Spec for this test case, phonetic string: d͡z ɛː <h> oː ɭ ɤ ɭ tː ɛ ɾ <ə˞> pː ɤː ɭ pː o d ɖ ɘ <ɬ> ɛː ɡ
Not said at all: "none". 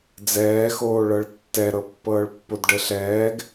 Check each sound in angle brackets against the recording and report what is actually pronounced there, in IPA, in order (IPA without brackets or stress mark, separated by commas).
x, ɤ, ɬ